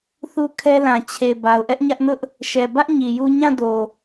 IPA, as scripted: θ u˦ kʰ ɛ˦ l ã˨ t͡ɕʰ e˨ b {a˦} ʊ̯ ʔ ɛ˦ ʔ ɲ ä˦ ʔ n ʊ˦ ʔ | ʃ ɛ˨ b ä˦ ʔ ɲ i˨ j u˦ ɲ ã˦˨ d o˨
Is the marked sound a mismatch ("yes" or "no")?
yes